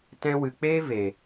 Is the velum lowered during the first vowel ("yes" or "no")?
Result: yes